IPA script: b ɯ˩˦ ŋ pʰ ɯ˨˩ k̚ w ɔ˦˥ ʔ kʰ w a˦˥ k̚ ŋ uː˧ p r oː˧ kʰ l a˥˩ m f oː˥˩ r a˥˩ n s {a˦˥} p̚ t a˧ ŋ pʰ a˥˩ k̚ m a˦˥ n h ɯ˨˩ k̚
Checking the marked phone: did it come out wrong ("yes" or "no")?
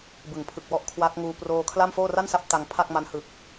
no